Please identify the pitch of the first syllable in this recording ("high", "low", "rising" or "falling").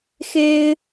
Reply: high